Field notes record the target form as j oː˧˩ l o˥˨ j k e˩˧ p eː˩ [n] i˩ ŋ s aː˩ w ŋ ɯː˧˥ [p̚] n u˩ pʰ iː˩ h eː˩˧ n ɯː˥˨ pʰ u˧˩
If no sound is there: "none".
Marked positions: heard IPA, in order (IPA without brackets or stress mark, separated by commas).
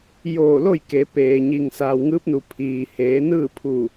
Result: ɲ, p̚